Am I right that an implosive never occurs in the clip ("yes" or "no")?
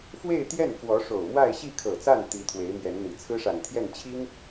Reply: yes